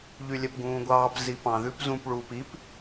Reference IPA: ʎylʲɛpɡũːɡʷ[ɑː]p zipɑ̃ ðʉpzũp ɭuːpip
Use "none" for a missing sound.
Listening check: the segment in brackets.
ɑː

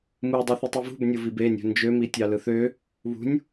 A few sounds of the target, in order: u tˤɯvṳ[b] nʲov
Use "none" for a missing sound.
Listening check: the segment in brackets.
b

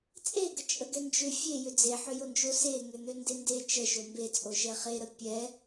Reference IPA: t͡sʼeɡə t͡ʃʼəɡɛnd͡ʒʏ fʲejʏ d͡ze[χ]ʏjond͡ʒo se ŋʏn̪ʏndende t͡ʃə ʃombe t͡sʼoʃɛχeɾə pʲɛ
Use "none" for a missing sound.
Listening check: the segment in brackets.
ħ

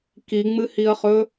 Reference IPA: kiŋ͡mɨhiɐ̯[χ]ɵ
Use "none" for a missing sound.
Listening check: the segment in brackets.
χ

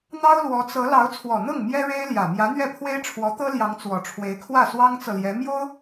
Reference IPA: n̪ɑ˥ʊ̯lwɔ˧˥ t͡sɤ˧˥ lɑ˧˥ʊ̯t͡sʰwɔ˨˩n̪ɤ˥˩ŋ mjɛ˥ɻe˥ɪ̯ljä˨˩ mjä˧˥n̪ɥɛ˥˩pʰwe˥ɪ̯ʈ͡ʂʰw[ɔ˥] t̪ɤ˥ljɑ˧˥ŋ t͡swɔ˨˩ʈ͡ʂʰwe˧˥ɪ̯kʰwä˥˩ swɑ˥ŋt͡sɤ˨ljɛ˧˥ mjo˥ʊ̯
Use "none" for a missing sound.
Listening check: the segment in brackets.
ɔ˧˥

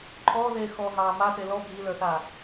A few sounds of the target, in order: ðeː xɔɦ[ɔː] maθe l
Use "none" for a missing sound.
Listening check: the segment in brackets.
ɑː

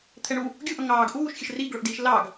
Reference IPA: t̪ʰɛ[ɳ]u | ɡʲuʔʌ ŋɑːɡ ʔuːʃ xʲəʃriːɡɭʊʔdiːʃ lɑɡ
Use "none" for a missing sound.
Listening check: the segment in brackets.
ɳ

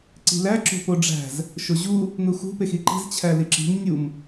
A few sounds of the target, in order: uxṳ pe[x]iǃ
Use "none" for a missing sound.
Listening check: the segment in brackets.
x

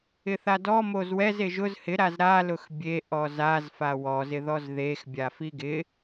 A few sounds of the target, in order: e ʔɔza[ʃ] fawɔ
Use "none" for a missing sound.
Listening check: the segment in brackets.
z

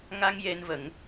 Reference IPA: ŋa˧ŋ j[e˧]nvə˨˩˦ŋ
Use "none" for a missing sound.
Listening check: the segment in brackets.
e˧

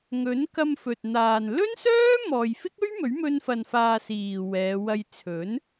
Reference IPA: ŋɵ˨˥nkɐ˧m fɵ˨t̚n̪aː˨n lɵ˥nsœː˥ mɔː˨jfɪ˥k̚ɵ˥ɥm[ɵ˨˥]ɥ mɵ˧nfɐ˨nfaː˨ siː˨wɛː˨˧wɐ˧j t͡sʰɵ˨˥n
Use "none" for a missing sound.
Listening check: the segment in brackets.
ɵ˨˥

